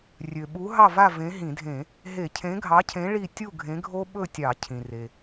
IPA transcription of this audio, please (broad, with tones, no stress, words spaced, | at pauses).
rʲø˩ɓu˨˥ ɦɑ˥˨va˥˨ vẽ˨˥ɦĩ˧˩˧dʱẽ˧˩˧ | ɦe˧˩˧cʰẽ˨˥ɡʱɑ˨˥cʰẽ˨˥ ɭi˥˨ tʲu˥˨ɡʱẽ˨˥ɡʱo˦˥ɓɵ˥˨ tʲɑ˧˩˧cʰĩ˩re˩